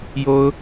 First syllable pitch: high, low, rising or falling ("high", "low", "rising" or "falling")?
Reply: high